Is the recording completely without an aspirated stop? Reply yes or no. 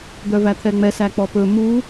no